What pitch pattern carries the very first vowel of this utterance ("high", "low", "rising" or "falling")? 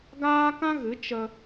high